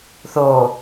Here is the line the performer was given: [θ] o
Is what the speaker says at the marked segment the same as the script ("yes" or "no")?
yes